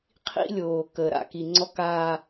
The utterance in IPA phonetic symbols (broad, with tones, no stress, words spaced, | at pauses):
qʰḭ˦lʲoː˨kəː˨ ɾa̰˨ki˨ŋ͡ǀɔ˦kaː˦